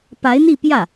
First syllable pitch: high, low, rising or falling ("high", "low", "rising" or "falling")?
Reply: rising